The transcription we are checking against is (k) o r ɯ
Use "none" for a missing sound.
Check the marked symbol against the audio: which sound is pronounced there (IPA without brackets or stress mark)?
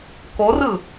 k